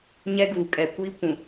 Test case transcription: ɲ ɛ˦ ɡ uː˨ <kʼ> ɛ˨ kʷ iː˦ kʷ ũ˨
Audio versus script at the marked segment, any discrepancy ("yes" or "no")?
no